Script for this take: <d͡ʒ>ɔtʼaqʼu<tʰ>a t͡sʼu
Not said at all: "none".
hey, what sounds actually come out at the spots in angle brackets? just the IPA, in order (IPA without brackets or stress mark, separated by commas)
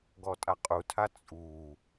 ɡ, tʰ